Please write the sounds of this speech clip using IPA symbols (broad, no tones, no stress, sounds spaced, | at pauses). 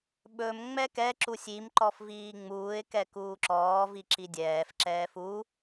ɓ ɵ m ŋ͡m ɛ k ɛ ǁ u sʲ i m ǃ ɔ f v iː ŋ͡m uː ɪ̯ k ɛ k uː ǁ ɔː v i ǁ i dʲ ɛː f ǁ ɛː f u